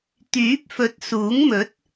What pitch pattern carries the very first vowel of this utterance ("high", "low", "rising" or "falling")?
rising